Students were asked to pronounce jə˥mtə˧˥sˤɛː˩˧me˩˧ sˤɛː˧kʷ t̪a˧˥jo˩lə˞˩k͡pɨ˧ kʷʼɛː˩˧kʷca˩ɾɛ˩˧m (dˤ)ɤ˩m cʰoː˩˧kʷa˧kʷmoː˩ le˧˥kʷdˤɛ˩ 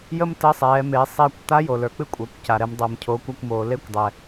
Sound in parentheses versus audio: correct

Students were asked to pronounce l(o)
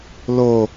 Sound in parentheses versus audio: correct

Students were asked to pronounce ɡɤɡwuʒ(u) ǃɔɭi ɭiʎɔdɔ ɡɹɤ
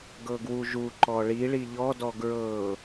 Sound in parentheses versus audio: correct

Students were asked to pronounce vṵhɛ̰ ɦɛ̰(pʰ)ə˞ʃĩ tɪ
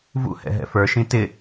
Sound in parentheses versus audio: incorrect: f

